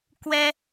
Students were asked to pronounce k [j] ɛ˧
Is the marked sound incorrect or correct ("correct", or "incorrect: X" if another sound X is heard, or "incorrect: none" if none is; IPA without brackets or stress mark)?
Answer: incorrect: w